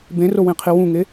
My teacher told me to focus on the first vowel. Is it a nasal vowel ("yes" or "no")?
yes